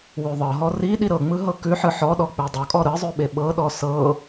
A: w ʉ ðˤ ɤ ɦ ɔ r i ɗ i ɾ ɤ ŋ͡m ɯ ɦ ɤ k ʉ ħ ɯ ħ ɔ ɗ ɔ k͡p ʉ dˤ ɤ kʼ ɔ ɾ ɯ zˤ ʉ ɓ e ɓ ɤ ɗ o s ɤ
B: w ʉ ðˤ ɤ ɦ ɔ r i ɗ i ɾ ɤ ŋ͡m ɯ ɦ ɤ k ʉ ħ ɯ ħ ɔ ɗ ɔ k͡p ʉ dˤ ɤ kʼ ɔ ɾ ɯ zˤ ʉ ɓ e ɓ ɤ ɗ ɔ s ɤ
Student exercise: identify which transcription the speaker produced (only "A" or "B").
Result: B